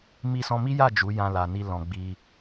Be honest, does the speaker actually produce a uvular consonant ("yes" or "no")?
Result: no